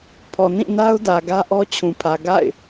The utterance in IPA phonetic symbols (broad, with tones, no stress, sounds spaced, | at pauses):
pʰ ɔ˨ n ĩ˦˨ n a˦ ʊ̯ d ä˨ ɡ ä˦ ʔ ɔ˦ t͡ɕʰ ũ˨ pʰ ä˨ ɡ a̰˦˨ ɪ̯